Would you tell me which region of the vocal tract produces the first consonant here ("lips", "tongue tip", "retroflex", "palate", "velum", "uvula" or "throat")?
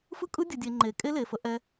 lips